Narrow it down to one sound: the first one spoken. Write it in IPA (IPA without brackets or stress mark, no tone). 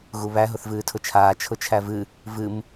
ɣ